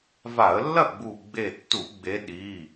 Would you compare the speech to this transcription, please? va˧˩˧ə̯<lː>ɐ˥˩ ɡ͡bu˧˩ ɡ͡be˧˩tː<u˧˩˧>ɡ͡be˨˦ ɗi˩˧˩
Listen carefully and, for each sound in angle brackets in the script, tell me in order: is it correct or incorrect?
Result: correct, correct

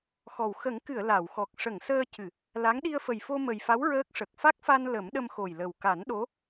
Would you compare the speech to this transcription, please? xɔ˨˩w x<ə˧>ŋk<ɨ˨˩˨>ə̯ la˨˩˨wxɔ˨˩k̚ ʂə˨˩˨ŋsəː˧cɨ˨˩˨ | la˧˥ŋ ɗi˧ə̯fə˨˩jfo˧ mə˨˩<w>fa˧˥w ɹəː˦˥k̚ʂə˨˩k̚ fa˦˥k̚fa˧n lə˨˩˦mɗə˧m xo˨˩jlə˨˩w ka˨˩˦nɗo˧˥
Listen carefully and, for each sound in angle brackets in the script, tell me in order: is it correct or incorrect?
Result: incorrect, correct, incorrect

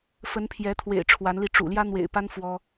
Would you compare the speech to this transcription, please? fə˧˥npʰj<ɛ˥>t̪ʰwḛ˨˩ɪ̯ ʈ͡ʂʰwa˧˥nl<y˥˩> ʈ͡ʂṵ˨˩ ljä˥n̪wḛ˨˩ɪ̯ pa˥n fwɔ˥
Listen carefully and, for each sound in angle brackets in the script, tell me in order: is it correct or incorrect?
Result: incorrect, incorrect

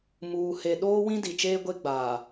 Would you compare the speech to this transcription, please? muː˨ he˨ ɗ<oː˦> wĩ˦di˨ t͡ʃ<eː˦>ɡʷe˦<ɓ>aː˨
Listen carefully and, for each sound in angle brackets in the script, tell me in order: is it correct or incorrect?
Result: correct, correct, incorrect

